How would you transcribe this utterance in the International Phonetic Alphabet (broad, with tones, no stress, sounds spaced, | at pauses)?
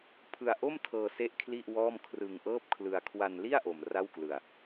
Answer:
pʰ ɯ˧ a̯ ʔ o˥˩ m tʰ ɤː˧ s e˥˩ ʔ kʰ l i˥˩ ʔ w ɔː˥˩ m kʰ r ɯ˧ ŋ ʔ ɤː˥˩ p̚ kʰ l ɯ˧ a̯ kʰ w a˧ n l i˥˩ a̯ ʔ o˧ m r a˥˩ w k l ɯ˧ a̯